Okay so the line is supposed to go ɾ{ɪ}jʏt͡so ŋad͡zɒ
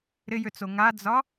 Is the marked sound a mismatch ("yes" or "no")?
no